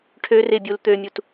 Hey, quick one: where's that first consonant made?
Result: retroflex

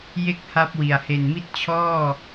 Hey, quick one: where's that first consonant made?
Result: palate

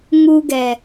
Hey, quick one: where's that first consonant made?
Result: velum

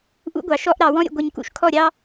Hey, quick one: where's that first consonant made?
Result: throat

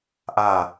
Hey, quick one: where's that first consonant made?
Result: throat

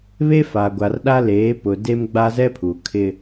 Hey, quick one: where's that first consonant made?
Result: lips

